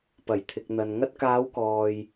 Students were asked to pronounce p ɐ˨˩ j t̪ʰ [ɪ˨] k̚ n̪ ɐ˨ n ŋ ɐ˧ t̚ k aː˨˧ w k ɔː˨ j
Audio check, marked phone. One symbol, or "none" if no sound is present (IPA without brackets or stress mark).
ɪ˨